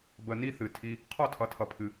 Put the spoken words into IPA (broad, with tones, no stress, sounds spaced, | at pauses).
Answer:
b ə˧ n i˦ θ ɨ˨ tʰ i˧ | qʰ ɔ˦˨ tʰ ʌ˨ tʰ ʌ˨ pʰ ɨ˨